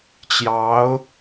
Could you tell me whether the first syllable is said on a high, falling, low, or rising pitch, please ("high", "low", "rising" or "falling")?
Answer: rising